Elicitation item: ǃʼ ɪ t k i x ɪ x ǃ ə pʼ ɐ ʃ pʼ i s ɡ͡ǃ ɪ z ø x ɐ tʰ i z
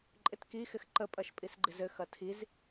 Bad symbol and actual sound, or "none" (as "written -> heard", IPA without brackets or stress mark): ø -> ɘ